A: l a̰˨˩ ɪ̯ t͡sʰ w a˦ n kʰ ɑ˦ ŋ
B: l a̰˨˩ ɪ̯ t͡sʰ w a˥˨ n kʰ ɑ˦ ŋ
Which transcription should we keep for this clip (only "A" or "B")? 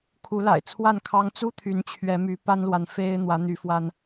B